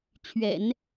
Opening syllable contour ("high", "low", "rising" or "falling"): low